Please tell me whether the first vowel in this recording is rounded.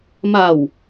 no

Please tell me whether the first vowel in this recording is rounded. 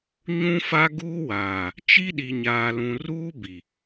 yes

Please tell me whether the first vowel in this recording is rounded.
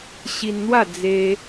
no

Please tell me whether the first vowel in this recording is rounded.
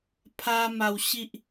no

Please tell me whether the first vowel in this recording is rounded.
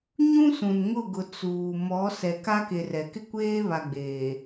yes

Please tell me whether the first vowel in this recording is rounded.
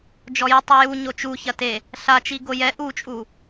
yes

